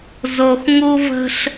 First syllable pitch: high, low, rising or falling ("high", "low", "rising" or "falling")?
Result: low